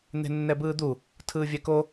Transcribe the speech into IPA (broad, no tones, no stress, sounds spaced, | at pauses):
n̪ e̤ nː ɛ b ɯː d̪ u | tʰ ɯː vʲ ɛ k o